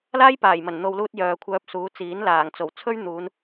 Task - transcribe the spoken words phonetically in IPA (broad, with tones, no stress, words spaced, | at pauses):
laː˥jpaː˨˩jmɐ˨˩n n̪o˨wluː˧t̚ jœː˨kʷʰœː˧p̚ suː˨˧t͡siː˨˥n laː˨˩ŋt͡so˨˩wt͡sʰɵ˥ɥn̪uː˨˧n